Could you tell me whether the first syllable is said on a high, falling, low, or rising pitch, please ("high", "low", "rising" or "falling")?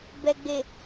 low